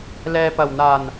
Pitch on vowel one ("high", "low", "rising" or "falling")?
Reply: low